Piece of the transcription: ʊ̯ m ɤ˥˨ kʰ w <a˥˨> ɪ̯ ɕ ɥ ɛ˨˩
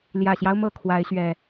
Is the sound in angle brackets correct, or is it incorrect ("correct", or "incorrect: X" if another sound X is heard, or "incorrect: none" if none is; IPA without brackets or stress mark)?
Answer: incorrect: a˨˦